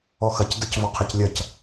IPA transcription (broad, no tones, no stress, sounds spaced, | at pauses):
ɔ x ɐ c d ɐ c v ɔ qʰ ɛ c lʲ ɐ c